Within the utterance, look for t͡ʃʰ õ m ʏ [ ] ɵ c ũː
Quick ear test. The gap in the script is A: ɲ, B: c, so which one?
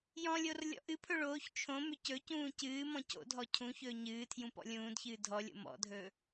B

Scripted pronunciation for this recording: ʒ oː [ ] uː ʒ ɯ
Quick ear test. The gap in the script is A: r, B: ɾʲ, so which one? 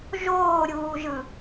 B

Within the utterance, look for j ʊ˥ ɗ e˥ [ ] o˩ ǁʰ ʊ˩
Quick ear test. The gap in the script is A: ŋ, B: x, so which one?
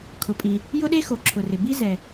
B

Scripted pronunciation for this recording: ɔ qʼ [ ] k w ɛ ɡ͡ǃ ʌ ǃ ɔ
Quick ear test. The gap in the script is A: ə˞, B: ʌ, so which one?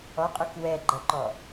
A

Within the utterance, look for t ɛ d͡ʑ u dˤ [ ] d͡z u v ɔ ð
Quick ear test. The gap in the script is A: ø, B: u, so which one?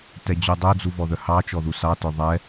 A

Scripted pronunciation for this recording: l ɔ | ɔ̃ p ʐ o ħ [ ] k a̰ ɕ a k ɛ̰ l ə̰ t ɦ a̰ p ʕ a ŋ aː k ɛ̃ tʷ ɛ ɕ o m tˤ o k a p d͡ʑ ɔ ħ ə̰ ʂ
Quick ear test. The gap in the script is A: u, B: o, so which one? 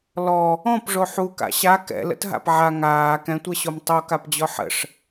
A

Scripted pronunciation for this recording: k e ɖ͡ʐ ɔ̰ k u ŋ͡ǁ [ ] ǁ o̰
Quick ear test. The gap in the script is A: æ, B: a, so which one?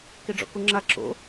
B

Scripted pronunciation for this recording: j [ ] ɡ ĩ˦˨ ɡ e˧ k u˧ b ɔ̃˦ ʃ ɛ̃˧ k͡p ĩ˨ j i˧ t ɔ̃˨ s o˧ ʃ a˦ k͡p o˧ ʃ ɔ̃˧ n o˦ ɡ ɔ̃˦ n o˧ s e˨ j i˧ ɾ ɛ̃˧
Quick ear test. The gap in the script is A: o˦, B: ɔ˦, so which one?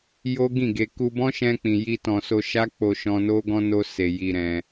A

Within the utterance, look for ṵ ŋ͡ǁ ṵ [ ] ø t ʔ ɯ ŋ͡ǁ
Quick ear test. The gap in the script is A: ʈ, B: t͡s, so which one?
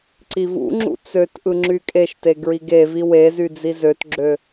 B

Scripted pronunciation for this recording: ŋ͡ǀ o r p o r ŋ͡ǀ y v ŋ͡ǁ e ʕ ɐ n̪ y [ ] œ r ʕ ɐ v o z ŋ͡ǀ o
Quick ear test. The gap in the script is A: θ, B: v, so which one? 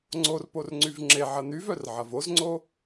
B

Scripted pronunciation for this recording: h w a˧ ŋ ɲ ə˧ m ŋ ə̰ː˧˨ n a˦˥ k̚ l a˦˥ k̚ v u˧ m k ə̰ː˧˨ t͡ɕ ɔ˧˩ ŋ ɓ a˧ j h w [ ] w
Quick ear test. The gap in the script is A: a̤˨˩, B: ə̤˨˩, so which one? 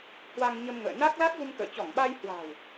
A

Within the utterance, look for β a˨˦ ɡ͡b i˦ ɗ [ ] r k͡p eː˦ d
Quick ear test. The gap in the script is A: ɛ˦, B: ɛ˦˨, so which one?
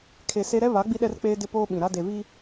A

